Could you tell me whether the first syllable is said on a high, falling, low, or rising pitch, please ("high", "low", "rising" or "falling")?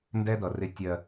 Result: high